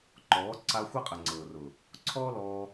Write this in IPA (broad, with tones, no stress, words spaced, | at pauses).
ǃɔː˨˦ ǀa˧xʷa˦qʼə˨ ŋ͡ǀɤː˨rʊ˨ | ǀʰɔː˦lɔː˧